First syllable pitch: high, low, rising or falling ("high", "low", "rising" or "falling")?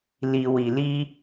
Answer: low